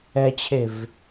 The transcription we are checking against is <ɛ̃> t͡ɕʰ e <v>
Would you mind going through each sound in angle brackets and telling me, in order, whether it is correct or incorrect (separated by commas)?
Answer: incorrect, correct